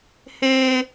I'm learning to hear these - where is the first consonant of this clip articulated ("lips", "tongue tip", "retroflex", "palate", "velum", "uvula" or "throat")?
throat